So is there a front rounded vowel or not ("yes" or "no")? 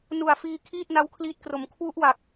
no